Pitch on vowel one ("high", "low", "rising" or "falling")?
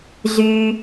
low